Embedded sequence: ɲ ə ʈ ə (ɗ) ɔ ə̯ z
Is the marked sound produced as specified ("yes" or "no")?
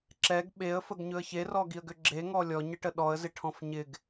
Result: yes